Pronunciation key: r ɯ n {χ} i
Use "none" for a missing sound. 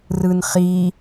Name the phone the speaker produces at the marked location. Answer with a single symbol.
χ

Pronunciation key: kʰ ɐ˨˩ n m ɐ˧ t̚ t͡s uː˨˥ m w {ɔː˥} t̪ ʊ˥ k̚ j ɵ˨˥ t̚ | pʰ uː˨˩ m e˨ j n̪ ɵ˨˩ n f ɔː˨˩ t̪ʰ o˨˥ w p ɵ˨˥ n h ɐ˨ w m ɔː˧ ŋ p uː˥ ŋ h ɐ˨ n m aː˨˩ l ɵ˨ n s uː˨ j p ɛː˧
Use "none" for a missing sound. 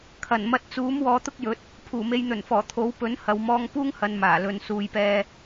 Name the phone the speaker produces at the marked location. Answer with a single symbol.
ɔː˨˧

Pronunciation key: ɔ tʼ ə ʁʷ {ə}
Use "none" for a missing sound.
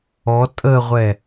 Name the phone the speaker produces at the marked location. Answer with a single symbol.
ɛ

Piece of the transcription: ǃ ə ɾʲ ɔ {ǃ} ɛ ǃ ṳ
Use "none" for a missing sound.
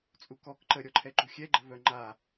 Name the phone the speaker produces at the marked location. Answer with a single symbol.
ǃʰ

